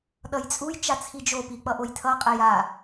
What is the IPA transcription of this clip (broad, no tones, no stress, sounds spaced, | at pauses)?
ɗ ʌ j t͡sʼ u j t͡ʃ a t͡sʰ i d͡ʒ o p i k͡p ʌ ʔ o j tʰ ʌ qʼ ɛ j a